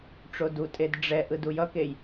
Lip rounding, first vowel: rounded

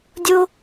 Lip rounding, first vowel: rounded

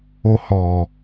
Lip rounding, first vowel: rounded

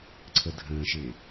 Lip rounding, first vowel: unrounded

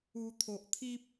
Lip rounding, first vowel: rounded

